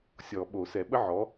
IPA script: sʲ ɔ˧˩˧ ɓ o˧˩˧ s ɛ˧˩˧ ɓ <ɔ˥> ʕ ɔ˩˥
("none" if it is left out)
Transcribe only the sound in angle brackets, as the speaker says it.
ə˥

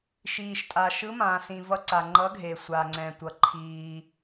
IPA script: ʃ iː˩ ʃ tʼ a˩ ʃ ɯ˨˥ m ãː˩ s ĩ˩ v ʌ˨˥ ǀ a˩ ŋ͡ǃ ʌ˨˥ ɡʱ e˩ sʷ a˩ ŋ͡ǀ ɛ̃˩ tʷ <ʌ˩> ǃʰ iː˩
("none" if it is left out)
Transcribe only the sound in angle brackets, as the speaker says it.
ʌ˩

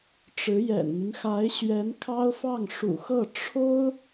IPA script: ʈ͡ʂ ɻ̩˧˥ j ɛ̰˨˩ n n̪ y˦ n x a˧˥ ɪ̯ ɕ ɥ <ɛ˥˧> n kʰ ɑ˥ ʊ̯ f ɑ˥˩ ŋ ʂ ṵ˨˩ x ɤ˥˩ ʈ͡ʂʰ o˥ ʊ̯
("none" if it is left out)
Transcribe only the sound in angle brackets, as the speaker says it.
ɛ˧˥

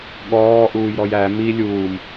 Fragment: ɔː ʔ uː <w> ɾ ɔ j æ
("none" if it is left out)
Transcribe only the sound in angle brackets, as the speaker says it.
j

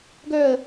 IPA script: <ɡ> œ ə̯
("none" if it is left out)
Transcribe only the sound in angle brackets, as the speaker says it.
ɡ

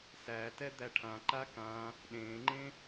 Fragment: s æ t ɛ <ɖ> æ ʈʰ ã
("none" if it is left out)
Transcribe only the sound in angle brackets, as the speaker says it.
d̪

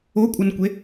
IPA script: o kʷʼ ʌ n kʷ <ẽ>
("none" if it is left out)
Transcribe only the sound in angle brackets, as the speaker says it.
e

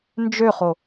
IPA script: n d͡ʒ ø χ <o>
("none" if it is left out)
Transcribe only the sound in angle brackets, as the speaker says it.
o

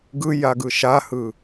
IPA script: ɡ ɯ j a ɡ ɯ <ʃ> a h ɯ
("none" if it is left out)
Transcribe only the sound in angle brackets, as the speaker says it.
ʃ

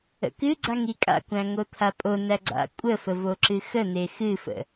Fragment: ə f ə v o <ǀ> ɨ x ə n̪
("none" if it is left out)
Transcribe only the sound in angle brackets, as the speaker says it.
ǁ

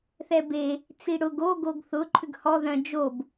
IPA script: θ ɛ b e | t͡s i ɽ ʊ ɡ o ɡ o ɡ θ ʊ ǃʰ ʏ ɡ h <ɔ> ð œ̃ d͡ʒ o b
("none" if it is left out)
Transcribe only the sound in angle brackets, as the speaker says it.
ɔ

